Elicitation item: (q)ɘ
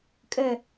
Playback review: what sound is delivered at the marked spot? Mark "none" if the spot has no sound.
kʼ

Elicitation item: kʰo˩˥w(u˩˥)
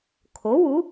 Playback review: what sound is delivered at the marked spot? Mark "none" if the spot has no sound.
u˩˥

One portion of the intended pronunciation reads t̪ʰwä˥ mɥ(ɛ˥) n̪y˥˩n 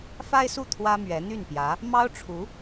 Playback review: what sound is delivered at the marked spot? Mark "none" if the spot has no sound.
ɛ˧˥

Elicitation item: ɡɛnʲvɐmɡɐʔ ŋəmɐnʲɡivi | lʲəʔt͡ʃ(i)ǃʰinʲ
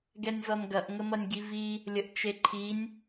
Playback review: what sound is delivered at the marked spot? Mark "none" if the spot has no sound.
e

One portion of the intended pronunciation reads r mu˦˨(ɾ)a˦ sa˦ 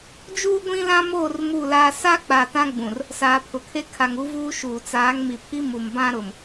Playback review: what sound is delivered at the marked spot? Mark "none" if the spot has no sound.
l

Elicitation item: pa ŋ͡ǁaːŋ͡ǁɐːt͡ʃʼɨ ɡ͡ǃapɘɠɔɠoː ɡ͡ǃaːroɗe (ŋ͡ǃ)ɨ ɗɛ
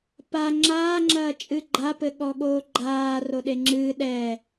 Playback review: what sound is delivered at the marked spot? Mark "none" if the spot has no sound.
ŋ͡ǁ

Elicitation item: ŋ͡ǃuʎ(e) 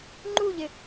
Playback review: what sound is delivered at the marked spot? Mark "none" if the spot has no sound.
e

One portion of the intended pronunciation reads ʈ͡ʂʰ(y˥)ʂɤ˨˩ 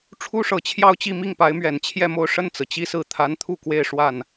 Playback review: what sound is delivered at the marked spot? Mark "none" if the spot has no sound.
u˥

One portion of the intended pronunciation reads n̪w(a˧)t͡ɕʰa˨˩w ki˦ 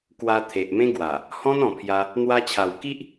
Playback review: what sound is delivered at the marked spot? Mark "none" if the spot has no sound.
a˧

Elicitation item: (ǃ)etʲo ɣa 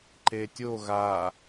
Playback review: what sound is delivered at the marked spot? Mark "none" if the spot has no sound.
ǃ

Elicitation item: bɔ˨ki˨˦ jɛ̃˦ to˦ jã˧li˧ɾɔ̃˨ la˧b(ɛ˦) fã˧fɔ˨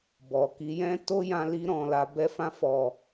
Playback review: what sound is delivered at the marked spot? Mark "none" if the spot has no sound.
ɛ˦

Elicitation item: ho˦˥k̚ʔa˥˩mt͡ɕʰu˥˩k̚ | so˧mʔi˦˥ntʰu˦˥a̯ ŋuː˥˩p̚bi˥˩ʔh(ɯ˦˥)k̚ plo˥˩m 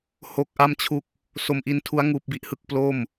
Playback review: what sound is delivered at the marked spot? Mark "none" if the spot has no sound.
ɯ˥˩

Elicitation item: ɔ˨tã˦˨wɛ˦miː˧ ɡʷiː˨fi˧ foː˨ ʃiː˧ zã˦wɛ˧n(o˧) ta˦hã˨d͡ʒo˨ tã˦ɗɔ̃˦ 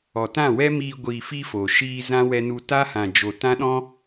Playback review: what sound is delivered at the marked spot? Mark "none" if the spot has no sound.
u˧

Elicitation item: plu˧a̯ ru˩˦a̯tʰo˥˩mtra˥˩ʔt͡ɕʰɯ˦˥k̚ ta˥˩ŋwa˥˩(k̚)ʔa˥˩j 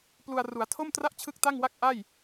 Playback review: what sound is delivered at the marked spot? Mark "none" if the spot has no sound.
k̚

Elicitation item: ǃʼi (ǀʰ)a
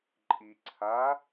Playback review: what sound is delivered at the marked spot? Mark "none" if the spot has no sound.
ǀʰ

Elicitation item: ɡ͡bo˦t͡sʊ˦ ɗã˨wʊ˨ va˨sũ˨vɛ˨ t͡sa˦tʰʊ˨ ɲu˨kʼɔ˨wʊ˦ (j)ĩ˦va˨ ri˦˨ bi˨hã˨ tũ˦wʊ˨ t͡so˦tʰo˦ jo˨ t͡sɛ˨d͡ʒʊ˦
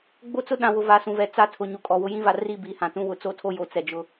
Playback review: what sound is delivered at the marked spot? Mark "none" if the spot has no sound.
j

